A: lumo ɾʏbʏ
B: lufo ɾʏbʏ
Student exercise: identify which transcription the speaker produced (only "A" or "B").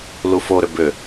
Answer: B